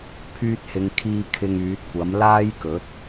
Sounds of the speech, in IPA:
pʰ yː˧ t̚ h ɪ˨ ŋ kʰ iː˧ kʰ ɪ˧ ŋ yː˨˥ t̚ kʷ ɐ˨˥ m l aː˥ j k ɵ˨˥ t̚

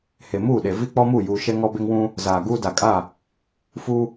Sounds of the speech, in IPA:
h e˨ m uː˦˨ ɗ e˨ v i˦ k͡p ɔ˦ m u˦˨ j uː˨ ʃ ɛ˦ ŋ ɔ˦ b e˦ ŋ w ũ˦ | z aː˨ ɡ uː˦ d a˨ kʼ a˦˨ | f u˦

